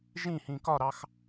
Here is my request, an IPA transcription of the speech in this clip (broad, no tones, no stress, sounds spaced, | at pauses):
ʒ ĩ h ĩ k ɒ ɾ ɑ x